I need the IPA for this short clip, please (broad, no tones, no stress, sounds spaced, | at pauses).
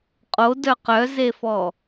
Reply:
qʼ o d œ q œ z e f ɔ